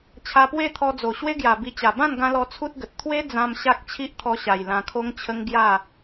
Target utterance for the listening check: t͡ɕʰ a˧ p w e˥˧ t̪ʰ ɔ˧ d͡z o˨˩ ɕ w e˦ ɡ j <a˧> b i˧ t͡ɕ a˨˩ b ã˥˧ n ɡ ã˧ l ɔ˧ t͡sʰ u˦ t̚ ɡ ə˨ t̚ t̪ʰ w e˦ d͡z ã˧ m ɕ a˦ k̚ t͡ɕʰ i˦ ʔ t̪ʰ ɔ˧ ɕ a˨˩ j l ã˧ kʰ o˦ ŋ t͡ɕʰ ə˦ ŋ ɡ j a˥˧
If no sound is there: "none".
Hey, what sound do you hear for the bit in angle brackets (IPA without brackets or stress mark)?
a˨˩